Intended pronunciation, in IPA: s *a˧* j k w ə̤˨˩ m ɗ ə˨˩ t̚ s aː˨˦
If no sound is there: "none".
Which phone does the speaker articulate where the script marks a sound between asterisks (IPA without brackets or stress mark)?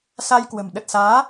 a˧